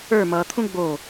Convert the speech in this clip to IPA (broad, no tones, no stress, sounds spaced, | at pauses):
ə˞ m ʌ t̪ʰ ũ ɡ͡b o